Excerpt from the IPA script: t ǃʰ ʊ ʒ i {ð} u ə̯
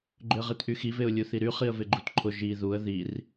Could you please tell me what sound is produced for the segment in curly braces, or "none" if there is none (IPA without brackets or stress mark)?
ð